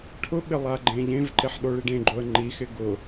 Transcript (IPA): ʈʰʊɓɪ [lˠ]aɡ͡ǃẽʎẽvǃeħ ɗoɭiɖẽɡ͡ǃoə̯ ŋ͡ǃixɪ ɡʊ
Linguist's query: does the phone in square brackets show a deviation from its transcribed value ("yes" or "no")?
no